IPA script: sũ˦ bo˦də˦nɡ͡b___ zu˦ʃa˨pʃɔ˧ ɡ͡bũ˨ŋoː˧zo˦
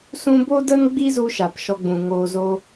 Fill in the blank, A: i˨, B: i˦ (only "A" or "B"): B